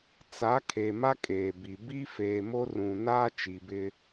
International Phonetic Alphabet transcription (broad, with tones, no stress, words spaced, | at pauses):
t͡sa˨˦ kʰe˨ ma˦kʼeː˨bi˨ bi˦feː˨mo˦ rũ˨ naː˦t͡ʃi˨bɪ˦